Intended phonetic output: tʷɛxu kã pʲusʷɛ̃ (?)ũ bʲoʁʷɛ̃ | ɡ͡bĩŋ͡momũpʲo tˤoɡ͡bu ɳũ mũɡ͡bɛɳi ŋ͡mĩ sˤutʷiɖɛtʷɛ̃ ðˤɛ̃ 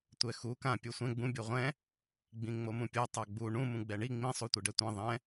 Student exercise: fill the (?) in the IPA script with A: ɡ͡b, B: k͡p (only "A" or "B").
A